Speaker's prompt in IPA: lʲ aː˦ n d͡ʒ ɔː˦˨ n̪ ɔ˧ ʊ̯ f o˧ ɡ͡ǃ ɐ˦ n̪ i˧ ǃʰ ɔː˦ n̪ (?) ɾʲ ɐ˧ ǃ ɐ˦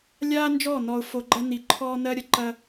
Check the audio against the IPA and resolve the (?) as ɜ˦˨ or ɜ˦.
ɜ˦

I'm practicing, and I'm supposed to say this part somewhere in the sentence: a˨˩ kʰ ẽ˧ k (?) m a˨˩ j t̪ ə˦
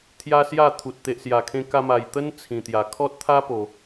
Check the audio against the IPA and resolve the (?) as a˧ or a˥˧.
a˧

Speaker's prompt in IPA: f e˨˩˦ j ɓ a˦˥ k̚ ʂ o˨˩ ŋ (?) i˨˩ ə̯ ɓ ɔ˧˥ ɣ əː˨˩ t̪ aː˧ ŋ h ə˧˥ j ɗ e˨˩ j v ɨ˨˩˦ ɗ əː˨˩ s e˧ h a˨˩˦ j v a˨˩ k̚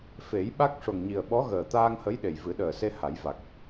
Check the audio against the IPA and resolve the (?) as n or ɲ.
ɲ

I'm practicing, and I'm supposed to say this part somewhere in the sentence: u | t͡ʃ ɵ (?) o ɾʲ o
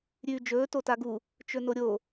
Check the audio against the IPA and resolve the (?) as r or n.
n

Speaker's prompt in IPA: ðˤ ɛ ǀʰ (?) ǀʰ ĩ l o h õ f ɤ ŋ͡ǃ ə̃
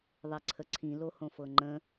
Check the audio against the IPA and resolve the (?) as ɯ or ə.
ə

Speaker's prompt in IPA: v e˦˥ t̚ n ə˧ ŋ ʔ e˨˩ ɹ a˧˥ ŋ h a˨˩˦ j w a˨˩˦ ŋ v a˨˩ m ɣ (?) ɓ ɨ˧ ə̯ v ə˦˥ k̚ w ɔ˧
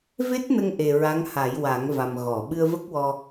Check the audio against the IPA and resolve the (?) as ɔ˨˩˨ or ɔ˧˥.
ɔ˨˩˨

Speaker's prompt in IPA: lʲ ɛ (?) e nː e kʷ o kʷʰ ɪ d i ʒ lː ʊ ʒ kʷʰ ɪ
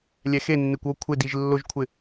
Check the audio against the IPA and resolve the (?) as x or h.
x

